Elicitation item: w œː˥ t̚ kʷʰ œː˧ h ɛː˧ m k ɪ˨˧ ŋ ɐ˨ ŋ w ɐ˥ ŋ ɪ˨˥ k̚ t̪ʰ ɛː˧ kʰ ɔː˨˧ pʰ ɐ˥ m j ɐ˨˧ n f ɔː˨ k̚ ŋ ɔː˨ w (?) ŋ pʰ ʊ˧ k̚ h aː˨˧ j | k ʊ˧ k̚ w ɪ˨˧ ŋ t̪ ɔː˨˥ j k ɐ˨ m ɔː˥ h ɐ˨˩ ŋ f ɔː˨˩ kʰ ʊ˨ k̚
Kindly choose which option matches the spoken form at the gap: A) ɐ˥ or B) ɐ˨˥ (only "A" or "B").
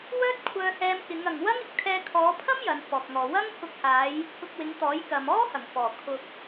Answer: A